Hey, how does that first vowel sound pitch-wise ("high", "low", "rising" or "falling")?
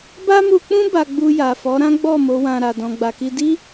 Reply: high